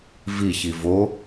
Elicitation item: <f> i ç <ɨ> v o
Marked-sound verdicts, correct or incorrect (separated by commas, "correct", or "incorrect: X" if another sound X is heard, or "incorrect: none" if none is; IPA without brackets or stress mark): incorrect: v, incorrect: i